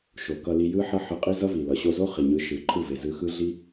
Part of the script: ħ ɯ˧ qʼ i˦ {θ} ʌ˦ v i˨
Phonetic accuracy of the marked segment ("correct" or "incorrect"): incorrect